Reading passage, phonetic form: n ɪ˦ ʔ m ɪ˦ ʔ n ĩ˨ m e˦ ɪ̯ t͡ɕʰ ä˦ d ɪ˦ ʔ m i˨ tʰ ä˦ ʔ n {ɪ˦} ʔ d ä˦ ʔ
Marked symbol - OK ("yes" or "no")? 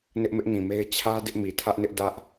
yes